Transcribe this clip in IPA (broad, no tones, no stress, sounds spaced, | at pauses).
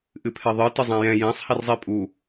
ʔ ɨ pʰ ɛ ðˤ ɨ t ɨ zˤ ɛ̃ j ɛ̃ j ɛ̃ sˤ h i r zˤ i pʼ u